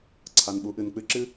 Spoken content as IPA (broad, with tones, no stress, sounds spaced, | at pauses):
ǀʰ a˩ n ɓ u˩˧ ʔ ɨ˩ n k͡p ɨ˧ ǁ ɨ˥